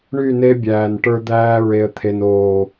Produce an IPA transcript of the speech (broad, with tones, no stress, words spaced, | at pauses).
ɳy˦˨ne˦ bʲæː˨nʈə˞˦d̪æː˦ ɹe˨ə̯t̪ʰe˨noː˨